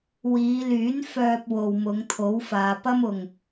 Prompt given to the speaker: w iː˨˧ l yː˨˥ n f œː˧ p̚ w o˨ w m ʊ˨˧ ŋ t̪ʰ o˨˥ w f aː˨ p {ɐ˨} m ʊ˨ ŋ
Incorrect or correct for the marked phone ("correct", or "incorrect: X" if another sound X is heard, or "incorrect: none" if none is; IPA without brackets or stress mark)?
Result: incorrect: ɐ˥